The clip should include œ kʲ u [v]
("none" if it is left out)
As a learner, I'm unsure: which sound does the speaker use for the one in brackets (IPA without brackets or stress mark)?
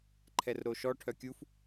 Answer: f